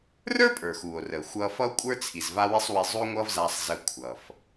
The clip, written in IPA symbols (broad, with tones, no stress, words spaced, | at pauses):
rə˞˥pʼə˞˩xu˩o̯rə˩ xʷʌ˧ fʌ˥o̯kʷʼə˞˥t͡sʰi˩z va˥wi˥sˤwi˧ zˤu˥ŋʷʌ˥vza˧sˤ zə˧ kʷʰʌ˩f